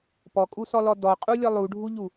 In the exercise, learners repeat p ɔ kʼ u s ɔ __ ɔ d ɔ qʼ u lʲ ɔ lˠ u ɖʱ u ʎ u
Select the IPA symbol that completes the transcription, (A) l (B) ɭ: A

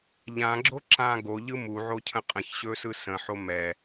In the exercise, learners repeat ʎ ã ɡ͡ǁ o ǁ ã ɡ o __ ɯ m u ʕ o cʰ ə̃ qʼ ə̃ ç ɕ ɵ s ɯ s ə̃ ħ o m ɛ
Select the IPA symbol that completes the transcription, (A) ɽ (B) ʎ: B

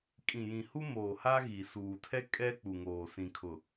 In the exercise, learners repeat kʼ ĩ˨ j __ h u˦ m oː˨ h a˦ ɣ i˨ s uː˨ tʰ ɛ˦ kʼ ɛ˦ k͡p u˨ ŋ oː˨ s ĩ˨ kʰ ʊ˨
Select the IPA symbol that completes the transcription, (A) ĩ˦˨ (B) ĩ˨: B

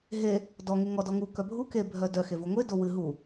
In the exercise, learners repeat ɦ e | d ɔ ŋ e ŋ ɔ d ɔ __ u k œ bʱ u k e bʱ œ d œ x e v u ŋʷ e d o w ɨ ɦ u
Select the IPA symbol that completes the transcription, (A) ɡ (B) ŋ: B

